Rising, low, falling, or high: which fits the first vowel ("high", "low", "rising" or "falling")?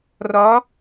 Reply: rising